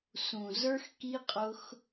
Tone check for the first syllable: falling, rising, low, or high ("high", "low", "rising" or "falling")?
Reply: low